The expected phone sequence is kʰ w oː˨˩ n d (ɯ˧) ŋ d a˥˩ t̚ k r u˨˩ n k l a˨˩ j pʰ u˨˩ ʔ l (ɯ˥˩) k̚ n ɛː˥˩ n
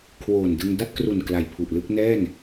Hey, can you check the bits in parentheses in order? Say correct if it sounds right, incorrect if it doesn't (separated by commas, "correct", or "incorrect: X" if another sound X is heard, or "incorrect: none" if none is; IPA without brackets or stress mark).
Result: correct, correct